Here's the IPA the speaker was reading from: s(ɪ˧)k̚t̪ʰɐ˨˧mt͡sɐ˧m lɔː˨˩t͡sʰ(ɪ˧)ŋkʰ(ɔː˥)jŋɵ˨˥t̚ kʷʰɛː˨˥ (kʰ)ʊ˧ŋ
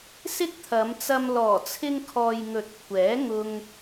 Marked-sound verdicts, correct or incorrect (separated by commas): incorrect, correct, incorrect, incorrect